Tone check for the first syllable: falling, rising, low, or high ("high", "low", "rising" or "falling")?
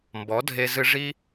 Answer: rising